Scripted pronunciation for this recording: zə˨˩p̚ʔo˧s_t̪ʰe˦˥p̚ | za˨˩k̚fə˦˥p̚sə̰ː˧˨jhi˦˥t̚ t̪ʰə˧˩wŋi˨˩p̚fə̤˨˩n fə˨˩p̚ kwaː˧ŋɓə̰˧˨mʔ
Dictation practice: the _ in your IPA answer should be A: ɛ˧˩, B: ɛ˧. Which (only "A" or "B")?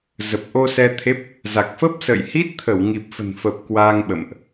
B